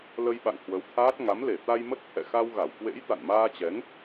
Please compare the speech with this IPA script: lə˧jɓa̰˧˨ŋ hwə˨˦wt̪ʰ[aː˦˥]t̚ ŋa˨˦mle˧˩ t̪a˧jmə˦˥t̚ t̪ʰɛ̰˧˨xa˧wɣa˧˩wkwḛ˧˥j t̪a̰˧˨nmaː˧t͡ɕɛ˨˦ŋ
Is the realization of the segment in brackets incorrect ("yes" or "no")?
no